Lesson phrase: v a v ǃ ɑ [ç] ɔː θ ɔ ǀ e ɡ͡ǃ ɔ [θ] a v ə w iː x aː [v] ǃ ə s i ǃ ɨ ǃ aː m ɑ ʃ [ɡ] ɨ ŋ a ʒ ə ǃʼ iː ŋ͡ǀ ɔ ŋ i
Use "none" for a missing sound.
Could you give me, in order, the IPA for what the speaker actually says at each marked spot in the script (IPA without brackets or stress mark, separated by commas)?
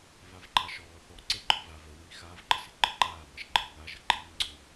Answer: ʃ, v, v, ɡ͡ǃ